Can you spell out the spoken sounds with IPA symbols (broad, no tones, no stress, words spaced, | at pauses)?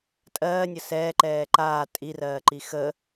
tʼɜːnʲə sɛːǃɛː ǃaː tʼirɜːǃi xə